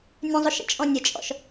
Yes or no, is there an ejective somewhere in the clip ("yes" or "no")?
yes